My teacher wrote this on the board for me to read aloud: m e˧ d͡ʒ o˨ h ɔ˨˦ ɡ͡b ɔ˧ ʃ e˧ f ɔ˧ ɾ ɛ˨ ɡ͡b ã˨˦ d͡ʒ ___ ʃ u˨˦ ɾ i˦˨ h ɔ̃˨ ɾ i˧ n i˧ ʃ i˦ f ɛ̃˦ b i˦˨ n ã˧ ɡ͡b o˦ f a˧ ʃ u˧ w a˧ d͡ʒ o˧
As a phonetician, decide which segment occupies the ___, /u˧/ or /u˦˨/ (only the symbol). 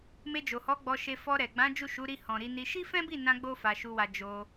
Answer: u˦˨